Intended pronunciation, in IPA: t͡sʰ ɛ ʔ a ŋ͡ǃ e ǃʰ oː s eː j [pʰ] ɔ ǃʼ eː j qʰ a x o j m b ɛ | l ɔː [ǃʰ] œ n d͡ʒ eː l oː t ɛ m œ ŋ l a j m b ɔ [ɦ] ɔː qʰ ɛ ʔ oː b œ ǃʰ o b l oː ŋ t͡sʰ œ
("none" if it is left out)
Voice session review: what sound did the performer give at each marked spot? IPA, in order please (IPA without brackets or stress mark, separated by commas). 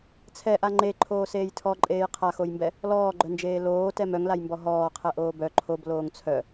tʰ, ɡ͡ǃ, ɦ